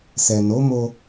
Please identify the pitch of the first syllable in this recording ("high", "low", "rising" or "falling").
low